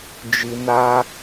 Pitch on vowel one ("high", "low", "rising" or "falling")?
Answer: low